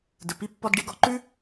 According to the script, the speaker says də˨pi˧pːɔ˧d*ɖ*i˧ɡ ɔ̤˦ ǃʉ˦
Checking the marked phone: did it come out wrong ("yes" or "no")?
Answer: no